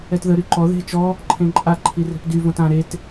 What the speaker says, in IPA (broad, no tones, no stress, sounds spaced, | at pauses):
ɛ t ð ə ɾ y ǃ ɔ ð e̤ t͡ʃ ɔ | ǃʰ ẽ ǃʼ a ǃʰ i r ɛ̤ p d y v õ t ã ɾ e t